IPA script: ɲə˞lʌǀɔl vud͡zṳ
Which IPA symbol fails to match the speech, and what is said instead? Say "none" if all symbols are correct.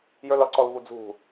ɲ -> j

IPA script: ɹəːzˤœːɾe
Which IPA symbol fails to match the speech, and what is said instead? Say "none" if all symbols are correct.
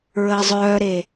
none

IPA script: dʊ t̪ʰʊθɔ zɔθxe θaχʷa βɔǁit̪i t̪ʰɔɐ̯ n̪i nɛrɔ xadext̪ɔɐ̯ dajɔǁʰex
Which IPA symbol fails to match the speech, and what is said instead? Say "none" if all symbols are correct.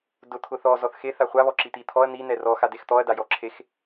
none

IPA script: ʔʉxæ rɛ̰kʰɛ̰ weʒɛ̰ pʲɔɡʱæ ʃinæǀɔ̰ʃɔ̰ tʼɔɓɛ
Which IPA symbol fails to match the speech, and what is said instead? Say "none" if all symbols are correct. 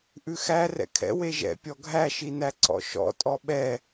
none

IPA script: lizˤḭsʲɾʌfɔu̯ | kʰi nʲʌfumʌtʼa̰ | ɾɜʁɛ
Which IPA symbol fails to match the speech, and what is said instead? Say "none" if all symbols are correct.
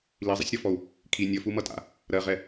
none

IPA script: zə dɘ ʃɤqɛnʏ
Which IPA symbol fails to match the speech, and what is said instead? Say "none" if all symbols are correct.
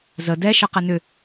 ɘ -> ɛ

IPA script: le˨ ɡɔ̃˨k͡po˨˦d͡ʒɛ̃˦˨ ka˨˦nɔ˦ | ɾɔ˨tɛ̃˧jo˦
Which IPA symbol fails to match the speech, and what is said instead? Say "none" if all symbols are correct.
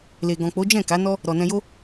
t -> n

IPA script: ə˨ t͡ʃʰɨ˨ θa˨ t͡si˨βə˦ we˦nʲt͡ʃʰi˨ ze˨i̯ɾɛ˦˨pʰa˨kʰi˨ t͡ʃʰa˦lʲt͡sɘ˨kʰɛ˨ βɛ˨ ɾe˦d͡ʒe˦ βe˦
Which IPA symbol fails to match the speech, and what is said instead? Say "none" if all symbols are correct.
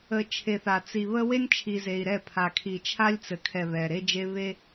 ɨ˨ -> e˨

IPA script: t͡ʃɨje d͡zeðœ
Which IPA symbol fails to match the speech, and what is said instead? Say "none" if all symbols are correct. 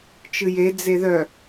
none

